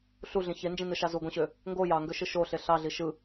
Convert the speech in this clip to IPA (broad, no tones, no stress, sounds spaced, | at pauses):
ɬ u ɮ ĩ ç e n d͡ʒ ĩ n ɯ ʃ ɑ z u ɡʷ ĩ ɕ ø | ŋ ɡ o j ɑ ŋ ɡ ø ʃ ɯ ʃ o ɬ e ɬ ɑ ɮ i ʃ ɯ